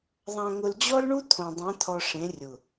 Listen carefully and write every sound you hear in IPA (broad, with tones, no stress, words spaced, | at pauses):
ðˤã˨ŋʊ˨ld͡ʑɔ˦lɳu˦ t̪ʰõ˨ dˤɛ̃˨˦t̪ʰɔ˨ ʂẽ˨˦rʲʊ˨